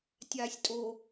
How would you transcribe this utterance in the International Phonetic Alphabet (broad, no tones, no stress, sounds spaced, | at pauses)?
tʲ aː sʲ tʼ o